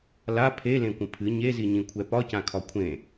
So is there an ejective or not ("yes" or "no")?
no